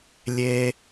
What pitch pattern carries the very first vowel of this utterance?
high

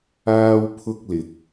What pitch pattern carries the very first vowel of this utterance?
high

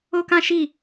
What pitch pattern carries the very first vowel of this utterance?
high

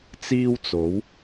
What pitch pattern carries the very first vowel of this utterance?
high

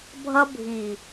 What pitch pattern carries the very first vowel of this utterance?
high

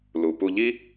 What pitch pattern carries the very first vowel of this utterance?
low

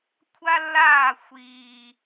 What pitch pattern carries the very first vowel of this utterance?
high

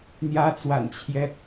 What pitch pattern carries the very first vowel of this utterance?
rising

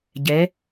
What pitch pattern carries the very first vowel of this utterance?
rising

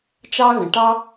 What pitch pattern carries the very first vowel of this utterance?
high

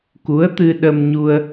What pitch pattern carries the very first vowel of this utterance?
rising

